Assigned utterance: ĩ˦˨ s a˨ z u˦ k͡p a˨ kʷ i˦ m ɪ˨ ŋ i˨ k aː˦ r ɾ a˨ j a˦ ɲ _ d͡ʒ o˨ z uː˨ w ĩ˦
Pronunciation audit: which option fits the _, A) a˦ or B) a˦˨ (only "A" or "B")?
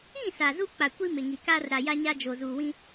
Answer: A